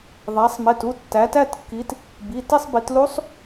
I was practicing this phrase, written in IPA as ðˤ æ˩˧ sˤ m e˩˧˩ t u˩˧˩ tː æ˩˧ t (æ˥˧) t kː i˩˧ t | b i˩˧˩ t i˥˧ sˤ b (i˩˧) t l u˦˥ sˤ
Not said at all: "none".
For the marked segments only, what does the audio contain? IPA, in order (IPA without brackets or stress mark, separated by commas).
æ˥˧, i˩˧